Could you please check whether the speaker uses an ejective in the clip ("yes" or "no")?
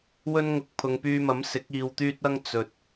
no